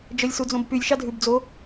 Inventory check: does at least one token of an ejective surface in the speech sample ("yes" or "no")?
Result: no